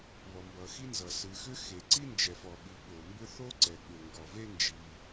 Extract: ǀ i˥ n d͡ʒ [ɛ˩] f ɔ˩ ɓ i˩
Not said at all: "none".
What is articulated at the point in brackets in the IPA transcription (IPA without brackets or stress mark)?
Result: ɛ˩